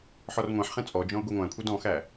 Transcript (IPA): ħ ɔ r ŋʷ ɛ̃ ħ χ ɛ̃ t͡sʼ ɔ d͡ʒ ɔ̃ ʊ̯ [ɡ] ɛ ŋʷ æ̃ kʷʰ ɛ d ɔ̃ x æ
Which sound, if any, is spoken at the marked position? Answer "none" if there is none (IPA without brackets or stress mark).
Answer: ɡʷ